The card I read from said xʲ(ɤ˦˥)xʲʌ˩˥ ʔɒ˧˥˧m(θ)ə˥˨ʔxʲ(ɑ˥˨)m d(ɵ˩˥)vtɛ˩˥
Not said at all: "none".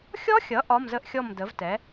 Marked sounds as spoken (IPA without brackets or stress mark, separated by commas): ɔ˦˥, z, ɔ˥˨, ə˩˥